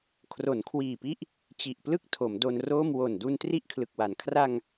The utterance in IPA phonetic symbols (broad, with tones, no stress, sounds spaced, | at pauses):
kʰ r o˩˦ n kʰ w iː˨˩ p i˦˥ ʔ | t͡ɕ i˨˩ ʔ p l ɯ˥˩ k̚ tʰ o˩˦ m d o˧ n r oː˥˩ m w o˨˩ n d u˧ n t r i˥˩ ʔ kʰ l ɯ˨˩ k̚ w a˩˦ n kʰ r a˧ ŋ